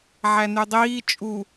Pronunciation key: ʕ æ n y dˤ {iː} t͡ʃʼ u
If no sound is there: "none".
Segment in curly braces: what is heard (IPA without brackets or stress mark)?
iː